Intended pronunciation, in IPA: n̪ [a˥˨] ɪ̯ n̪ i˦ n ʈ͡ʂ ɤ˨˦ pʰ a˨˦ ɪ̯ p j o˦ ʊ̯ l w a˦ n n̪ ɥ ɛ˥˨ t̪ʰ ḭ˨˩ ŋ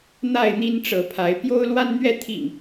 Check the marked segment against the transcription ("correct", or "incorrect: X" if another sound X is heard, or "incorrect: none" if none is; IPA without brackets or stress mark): correct